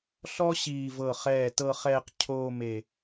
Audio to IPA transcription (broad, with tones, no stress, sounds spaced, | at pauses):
ɬ ɔ˥ ɕ iː˧˩ v ɤ˧˩ χ ɛː˧˩ t ɤ˧ χ ɛː˧ q cʰ oː˥˧ m e˧˩